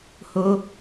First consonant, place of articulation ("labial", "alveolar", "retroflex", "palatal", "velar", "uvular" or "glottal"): glottal